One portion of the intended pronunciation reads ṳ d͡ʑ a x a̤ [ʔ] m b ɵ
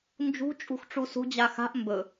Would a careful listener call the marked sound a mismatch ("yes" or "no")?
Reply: no